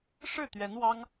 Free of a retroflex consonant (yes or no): no